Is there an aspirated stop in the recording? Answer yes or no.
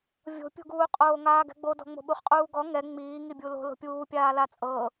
no